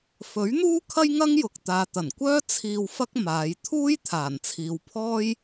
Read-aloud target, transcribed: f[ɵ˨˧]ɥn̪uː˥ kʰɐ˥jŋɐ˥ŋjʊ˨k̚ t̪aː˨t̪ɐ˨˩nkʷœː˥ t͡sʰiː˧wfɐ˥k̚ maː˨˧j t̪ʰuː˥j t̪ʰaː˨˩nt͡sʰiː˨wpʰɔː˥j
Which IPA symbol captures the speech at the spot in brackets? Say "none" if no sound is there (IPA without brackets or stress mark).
ɵ˨˥